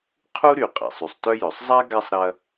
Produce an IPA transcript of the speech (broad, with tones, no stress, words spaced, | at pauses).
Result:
qʰu˥ɾy˨qʼɛ̰˩sˤ y˩sˤtœ˥jœ˩sˤ zˤa˥ ɡa˥sˤɾɐ˦